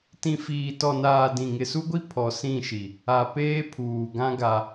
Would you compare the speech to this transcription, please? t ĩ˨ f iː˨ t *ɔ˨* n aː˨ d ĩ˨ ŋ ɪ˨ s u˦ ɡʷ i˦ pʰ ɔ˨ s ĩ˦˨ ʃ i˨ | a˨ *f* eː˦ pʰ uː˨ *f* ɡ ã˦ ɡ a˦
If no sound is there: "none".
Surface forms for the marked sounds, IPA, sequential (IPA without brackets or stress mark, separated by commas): ɔ˨, p, none